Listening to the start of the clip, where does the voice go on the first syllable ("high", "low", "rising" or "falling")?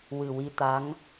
low